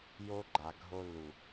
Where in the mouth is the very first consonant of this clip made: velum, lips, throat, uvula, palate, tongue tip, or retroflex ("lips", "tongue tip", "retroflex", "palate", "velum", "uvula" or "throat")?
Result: palate